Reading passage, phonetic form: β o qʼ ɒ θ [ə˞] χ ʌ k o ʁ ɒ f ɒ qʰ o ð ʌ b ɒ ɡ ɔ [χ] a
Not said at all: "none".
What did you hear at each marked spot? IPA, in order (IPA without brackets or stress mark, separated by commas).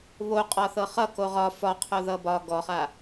ɤ, χ